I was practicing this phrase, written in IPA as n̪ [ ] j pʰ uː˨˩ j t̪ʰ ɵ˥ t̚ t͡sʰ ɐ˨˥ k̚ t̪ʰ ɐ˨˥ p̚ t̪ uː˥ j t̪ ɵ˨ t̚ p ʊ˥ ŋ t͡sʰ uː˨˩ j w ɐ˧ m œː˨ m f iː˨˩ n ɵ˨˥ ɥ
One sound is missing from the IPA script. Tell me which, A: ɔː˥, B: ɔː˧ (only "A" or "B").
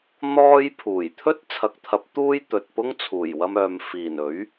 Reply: A